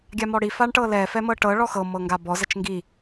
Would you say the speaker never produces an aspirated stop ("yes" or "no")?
yes